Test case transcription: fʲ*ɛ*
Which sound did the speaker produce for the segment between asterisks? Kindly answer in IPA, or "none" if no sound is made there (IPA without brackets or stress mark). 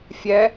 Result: ɛ